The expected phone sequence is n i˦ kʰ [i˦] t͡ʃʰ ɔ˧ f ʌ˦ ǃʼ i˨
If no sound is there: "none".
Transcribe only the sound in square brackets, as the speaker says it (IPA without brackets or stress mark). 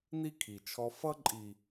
i˨